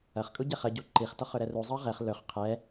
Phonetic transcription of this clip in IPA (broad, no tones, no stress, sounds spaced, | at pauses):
ɐ χ kʼ u ɟ ɛ χ ɐ ɟ u ǃ i χ t ɔ χ ɵ ɾ ɛ r u zˤ ɐ ʁ ɛ χ l ɵ χ qʰ ɛ